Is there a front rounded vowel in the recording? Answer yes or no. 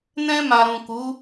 no